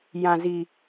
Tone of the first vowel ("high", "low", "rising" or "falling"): low